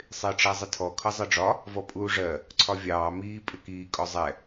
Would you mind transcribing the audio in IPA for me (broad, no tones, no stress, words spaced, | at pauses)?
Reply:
sˤɪːʈ͡ʂæzˤɪtʰɔ kʰʌzˤʌɖ͡ʐɒ | vɔpʼuːʐɜ | ǀʰɒvʲɑː miː pʼɪkiː kʼɔzˤɛ